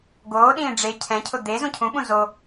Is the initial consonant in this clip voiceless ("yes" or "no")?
no